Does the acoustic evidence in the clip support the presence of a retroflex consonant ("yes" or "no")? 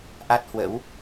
no